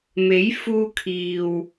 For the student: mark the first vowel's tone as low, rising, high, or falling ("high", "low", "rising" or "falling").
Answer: rising